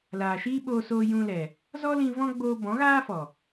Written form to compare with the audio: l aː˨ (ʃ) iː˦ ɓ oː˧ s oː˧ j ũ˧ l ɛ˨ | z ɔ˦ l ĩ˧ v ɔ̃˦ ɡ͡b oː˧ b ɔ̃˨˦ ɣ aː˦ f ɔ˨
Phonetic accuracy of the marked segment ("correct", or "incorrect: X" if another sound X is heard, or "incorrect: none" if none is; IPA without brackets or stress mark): correct